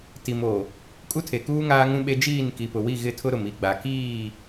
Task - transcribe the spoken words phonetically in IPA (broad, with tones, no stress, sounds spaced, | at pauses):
t i˨ m o˨ | kʼ u˦ tʰ e˨ k uː˦ ŋ aː˦ ŋ ũ˦ ɓ e˦ d͡ʒ iː˦˨ n k i˨ p ʊ˨ w i˦˨ ɣ ɪ˦˨ tʰ ʊ˦ ɾ ʊ˨ m i˦˨ ɡ͡b a˨ k iː˦˨